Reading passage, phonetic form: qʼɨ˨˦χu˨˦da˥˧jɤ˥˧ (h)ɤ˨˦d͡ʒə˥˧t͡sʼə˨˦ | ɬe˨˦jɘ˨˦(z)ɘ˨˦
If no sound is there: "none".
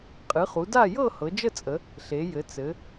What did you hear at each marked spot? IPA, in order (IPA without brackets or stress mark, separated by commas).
h, t͡s